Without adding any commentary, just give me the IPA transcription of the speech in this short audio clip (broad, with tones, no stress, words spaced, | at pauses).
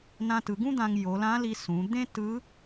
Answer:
nã˧tɯ˩˧ɡũ˥d̪ã˧ŋ jo˩˧lã˧˥li˧ sũ˩˧ d̪ẽ˥tɯ˧˥